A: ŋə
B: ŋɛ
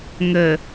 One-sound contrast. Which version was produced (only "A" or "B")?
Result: A